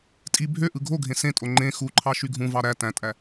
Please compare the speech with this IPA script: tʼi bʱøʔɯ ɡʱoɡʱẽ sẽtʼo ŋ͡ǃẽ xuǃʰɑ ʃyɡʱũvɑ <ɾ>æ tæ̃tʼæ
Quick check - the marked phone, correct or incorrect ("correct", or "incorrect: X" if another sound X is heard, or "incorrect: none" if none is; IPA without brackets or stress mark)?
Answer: correct